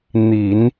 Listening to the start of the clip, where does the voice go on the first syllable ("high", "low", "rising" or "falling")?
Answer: low